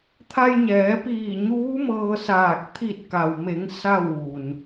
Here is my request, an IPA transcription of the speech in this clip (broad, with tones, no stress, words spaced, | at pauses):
t̪ʰa˧jɲɛː˩˧piː˧˩ ɲuː˧˥mɤː˧saː˧˩k̚ t̪ʰi˧˩t̚ka˩wme˩˧ŋ sa˥˨wʋu˩n